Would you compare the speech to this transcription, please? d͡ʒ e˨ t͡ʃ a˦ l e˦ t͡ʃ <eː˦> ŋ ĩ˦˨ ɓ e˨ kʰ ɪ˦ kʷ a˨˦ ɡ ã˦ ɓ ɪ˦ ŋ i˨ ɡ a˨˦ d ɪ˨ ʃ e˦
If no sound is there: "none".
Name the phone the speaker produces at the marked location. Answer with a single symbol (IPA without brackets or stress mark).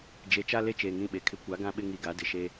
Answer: eː˨